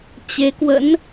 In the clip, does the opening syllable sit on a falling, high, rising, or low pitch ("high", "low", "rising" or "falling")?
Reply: rising